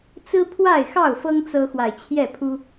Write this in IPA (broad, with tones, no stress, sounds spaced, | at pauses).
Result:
t͡s ɹ̩˦ pʰ w a˥˨ ɪ̯ x ɑ˥˨ ʊ̯ f ɤ˦ ŋ t͡s ɤ˦ x w a˨ ɪ̯ t͡ɕʰ j ɛ˥˨ pʰ u˦